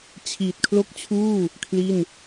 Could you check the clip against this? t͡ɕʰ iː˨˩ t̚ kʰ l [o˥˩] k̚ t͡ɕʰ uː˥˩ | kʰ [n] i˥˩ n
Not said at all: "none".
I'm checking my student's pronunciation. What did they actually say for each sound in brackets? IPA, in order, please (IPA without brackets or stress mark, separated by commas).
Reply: o˥˩, l